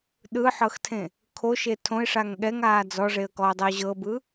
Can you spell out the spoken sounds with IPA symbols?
ɗ ɯ ħ ɤ x tʰ ẽ | kʰ o ʃ e tʰ õ ɪ̯ ʂ a ŋ ɠ ɛ ŋ aː d͡z ɔ ʐ e ə̯ k ɔ ʊ̯ dˤ i ʊ̯ ʑ ɤ b ɯ

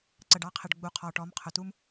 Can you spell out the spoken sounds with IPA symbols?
ǀ ə˨ ɖ ɑ˦ qʰ ɪ˨ ɖ ɡ͡b u˨ qʰ ɔ˨ ʈ ɔ˨˦ m qʰ ʊ˨ t u˦ m

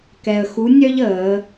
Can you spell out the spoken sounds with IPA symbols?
k ɛ˧ ə̯ x u˧˥ nʲ œ˥ ʎ əː˩˧

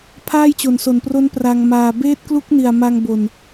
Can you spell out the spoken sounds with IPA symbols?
pʰ aː˥˩ j t͡ɕ o˨˩ n s o˨˩ n p r o˦˥ n p r a˧ ŋ m aː˧ b eː˦˥ t̚ k l u˦˥ k̚ n i˨˩ a̯ m a˧ ŋ b o˨˩ n

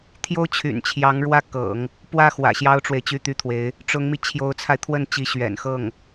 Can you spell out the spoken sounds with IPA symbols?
t̪ʰ j o˥ ʊ̯ t͡ɕʰ y̰˨˩ n t͡ɕʰ j ɑ˧˥ ŋ ɻ w ä˥˩ k ɤ̰˨˩˦ ŋ | p w ä˥˩ x w ä̰˨˩ ɕ j ɑ˥ ʊ̯ ʈ͡ʂ w e˨ ɪ̯ t͡ɕ y˥˩ t̪ y˥ t̪ʰ w e˧˥ ɪ̯ | ʈ͡ʂ ʊ˧˥ ŋ m i˧ t͡ɕʰ j o˧˥ ʊ̯ t͡sʰ a˧ ɪ̯ t̪ʰ w ə˥˩ n t͡ɕ i˧˥ ɕ ɥ ɛ̰˨˩ n x ɤ˥˩ ŋ

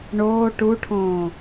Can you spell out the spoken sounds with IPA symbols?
ɳ oː ʈ u ʈʰ õː

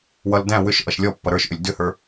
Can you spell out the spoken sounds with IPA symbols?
w ʌ l d æ̃ w ʏ ʃ ʔ ʌ ʃ lʲ ɔ pː ʌ ɾ ə˞ ʃ ʔ ʏ lʲ d ʏ h ə˞

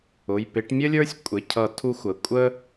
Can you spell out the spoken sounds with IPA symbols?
ʊ˩˧˩ j p ɪ˨˩˦ ʈ mʲ ə˥ lʲ ə˞˥ sʲ kʷʼ ɪ˩˧˩ cʰ ʌ˨˩˦ tʰ u˧˥ xʷ ə˩˧˩ kʷʼ ə˥

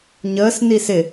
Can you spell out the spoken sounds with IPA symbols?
ɲ əː s n i s ɪ

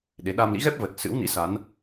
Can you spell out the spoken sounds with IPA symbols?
ɗ e˨˦ ɗ a˧ m l ḭ˧˥ ɣ ɛ˦˥ p̚ v ə˨˩ t̚ s ɨ̰˧˥ w n ḭ˧˥ s a˨˦ n

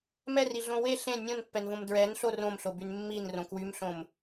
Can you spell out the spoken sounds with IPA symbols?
m ɛ r i ɮ õ w e ɬ ẽ nʲ õ n pː ɛ n v õ m d ɹ ɛ n ɬ o r õ m ɬ o b y n mː i n r õ k w y m ɬ õ m

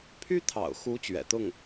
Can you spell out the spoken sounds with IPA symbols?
pʰ y˥ t̪ʰ ɑ̰˨˩ ʊ̯ x u˧˥ t͡ɕ ɥ ɛ̰˨˩ t̪ ʊ˥˩ ŋ

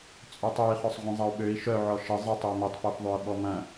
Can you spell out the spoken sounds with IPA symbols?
t͡sʼ ø tˤ ø i̯ χ œ sˤ ʁʷ ĩ zˤ ɐ u̯ ɓ ø i̯ ʃ œ ʕ ɔ ʃ ə zˤ ɪ tˤ ɪ u̯ m ɪ tˤ p œ f ðˤ ø i̯ ɓ ɔ m ɐ̃

